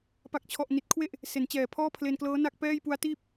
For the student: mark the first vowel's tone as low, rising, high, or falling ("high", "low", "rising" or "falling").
low